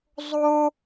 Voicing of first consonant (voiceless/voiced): voiced